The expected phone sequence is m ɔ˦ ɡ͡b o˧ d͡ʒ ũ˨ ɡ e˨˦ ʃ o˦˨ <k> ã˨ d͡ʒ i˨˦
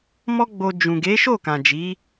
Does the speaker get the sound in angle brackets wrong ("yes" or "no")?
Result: no